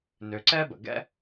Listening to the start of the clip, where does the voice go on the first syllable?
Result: low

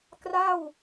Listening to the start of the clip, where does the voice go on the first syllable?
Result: falling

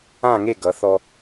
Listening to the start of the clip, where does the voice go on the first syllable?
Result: falling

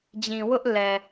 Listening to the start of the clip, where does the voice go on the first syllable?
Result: low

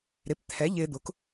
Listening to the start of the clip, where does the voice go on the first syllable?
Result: rising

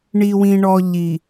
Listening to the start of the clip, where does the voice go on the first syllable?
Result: low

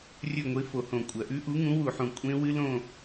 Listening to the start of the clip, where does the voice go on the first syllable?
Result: falling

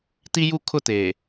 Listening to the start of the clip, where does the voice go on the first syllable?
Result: high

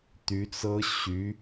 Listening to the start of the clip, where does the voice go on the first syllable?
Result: rising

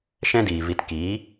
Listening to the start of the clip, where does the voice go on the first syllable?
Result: high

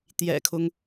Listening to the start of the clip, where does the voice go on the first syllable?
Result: low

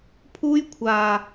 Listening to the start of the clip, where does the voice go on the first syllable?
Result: high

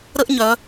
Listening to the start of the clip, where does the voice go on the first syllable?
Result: high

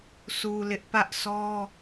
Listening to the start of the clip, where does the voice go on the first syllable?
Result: low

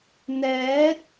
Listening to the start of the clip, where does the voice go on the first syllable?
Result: rising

